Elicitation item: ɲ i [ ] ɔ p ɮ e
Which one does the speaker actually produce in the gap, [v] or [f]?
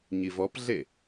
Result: v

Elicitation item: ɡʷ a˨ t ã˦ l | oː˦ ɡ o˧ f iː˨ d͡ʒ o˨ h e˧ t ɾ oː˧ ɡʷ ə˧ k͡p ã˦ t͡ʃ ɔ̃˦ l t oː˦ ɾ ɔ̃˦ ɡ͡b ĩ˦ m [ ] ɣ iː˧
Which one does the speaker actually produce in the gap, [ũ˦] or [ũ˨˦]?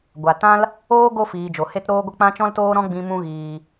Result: ũ˦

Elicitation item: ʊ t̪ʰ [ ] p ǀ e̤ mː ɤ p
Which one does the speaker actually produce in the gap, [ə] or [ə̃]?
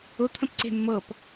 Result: ə̃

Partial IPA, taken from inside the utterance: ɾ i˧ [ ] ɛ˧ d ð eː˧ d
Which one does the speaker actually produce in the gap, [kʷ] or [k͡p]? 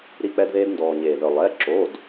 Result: k͡p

